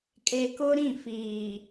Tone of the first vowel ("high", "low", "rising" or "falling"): low